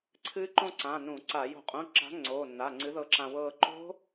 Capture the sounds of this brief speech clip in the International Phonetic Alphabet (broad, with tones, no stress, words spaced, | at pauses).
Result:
ǀʰɨː˦˥ǃõ˥˧ǀã˩˧˩ nũ˧˩˧ ǀa˧˩˧ jo̤˧˩˧qʼũ˩˧˩ǁa̤˨˥ ŋ͡ǀoː˩˧˩nːa˩˧˩ŋ͡ǀɨ˨˥ðɤ˧ ǁã˧wɤː˥˧ ǃo̤˦˥